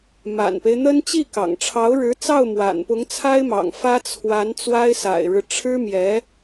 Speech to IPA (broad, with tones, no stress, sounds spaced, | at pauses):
m a̰˨˩ n p e˦ ɪ̯ n̪ ə˥ n t͡ɕ i˥˩ k ɑ̰˨˩ ŋ ʈ͡ʂʰ ɑ˧˥ ʊ̯ ɻ ɻ̩˧˥ t͡s ɑ˥˩ ʊ̯ m w a̰˨˩ n p ʊ˧˥ ŋ t͡sʰ a˥ ɪ̯ m ɑ̰˨˩ ŋ f ä˥ t͡sʰ w a˧˥ n t͡s w a˥ ɪ̯ s a̰˨˩ ɪ̯ ɻ ɻ̩˦ ʈ͡ʂʰ ɻ̩˥ m j ɛ˧˥